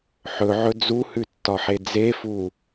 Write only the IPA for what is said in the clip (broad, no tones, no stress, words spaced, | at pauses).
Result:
ħɵʕɵ d͡zuhʉtːɒħe d͡zefu